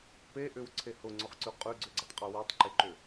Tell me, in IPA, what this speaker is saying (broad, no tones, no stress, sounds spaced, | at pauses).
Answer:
p e ʔ ʏ w ǀʰ e h ʊ ŋ͡ǀ ʊ χ ǀ ʉ qʼ ʉ ɡ͡ǀ ʏ ɡ͡ǀ ʏ tˤ qʼ ʉ w e tˤ ǃ e ǃ ʏ